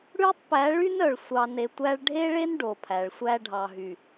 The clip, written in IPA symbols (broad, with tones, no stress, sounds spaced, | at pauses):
ɽ ʉ˦ tˤ p æ˨˦ ɭ y˦ n œ˨ ɭ sʷ ɑ˨ n e˨ tʷ æ˦ ɭ ɖʱ e˦ ɭ e˦ n ɖ o˨ pʰ æ˨ ɭ sʷ æ˦ ɖʱ ɑ˨ ɦ y˨